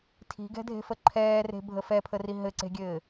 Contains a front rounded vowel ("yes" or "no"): no